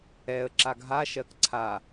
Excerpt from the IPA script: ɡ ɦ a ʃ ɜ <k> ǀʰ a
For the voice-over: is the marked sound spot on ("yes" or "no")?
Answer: yes